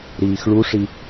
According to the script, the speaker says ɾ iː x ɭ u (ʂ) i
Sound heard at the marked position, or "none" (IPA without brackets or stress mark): ʂ